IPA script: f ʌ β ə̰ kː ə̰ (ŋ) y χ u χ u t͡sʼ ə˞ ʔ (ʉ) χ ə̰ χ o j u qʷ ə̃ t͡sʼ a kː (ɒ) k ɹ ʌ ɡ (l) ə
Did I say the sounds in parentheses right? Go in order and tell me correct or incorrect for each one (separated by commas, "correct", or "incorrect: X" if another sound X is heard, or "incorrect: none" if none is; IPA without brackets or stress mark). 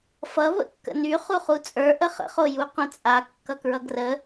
incorrect: n, incorrect: ə, incorrect: ʌ, incorrect: r